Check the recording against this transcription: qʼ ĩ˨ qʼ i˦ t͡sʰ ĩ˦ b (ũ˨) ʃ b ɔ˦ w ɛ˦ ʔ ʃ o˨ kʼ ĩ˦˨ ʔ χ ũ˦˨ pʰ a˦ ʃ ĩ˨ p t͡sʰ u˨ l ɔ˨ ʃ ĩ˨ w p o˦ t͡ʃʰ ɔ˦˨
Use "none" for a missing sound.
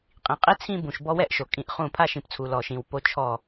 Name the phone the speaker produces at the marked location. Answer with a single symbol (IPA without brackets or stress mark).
ũ˨